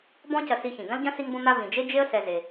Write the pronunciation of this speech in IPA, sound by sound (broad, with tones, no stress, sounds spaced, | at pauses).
b ɔ̃˦ c ɐ˧ s i˧ ç ĩ˨ ɡ ɐ̃˦ l ɟ ɐ̃˦ s i˦ ŋ b õ˦ n̪ a˦ v ĩ˨ d͡ʒ e˦ d͡ʒ e˦ ə̯ s ɛ˧ z e˧